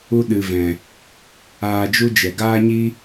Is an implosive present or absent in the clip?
present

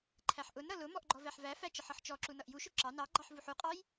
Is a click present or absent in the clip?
present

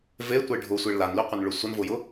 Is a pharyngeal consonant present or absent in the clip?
absent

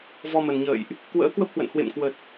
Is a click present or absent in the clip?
absent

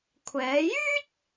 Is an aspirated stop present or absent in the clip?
present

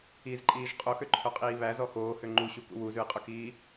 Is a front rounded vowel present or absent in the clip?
present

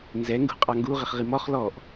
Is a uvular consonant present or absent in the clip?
present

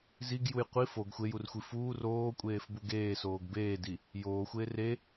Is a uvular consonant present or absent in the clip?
present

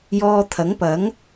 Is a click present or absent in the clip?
absent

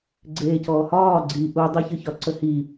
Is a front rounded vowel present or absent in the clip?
absent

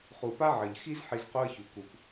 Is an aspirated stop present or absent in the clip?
absent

